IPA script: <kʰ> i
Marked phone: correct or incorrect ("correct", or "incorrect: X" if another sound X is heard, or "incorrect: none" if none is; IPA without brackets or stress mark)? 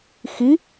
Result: incorrect: x